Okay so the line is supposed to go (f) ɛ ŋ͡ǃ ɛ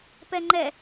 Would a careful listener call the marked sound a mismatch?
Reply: yes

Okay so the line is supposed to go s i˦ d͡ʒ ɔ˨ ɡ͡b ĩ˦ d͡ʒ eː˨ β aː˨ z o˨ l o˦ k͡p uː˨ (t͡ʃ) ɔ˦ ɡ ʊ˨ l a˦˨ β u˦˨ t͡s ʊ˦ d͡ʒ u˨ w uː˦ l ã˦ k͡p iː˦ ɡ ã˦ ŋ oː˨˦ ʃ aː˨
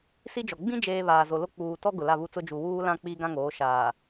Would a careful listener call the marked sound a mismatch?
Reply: yes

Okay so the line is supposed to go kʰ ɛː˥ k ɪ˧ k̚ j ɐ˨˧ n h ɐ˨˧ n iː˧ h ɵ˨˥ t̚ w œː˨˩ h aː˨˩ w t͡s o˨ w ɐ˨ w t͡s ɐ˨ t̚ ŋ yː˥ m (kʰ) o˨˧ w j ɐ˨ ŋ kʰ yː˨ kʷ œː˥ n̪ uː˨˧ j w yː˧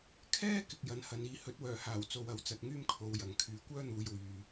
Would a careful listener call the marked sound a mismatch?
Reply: no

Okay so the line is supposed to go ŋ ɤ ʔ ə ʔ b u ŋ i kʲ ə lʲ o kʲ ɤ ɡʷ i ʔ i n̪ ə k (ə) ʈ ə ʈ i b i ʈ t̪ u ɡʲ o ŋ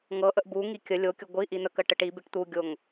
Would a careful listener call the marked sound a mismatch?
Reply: no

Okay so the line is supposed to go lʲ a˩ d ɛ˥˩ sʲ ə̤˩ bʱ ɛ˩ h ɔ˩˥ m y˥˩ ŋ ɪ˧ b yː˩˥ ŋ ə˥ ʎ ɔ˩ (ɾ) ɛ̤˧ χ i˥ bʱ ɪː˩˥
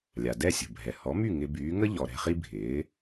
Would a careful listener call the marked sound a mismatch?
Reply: no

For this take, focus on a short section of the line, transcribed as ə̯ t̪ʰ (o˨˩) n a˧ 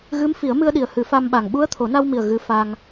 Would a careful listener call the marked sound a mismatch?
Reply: yes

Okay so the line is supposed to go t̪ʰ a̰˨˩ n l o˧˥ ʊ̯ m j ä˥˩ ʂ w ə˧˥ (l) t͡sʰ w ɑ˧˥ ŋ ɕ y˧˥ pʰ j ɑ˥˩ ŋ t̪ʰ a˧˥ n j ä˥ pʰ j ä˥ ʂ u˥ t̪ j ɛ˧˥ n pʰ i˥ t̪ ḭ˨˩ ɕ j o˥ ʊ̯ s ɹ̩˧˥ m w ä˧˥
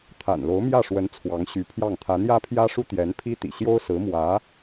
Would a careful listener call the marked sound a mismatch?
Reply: yes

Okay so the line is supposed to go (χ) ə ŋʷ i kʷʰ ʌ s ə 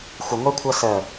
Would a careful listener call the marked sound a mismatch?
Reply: yes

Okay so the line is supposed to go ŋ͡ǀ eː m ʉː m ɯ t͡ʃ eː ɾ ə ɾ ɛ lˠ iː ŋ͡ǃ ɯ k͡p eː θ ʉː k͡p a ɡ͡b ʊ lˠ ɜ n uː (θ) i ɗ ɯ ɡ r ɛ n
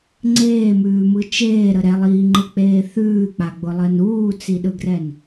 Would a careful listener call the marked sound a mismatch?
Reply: yes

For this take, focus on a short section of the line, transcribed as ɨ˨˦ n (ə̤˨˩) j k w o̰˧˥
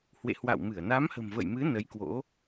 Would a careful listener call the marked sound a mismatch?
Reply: yes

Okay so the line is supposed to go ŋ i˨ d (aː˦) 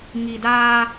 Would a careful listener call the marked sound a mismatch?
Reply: no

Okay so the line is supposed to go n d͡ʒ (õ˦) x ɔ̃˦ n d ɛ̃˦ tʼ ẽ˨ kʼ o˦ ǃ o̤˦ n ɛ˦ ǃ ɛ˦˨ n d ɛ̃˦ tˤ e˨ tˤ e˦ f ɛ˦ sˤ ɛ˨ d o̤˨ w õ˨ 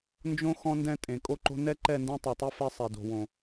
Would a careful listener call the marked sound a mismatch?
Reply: no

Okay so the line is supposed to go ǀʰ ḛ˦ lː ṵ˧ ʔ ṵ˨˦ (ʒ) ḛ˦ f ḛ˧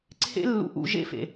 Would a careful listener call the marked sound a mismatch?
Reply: no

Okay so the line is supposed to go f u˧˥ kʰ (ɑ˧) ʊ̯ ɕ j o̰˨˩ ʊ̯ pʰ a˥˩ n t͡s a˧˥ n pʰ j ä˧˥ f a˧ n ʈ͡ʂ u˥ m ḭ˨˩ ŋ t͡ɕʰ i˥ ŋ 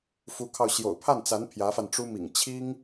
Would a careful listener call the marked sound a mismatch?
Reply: no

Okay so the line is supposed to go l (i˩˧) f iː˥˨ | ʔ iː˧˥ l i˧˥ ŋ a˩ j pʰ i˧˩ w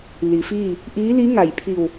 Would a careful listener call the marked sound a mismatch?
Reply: no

